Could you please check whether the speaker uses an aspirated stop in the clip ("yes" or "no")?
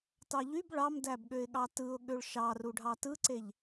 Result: no